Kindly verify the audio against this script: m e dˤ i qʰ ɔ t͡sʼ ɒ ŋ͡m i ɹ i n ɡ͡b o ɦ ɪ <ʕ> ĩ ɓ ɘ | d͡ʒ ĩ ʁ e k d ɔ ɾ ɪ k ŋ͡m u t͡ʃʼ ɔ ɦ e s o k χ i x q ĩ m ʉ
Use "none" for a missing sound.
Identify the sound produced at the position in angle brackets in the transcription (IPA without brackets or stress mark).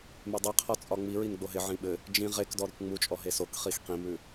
ʕ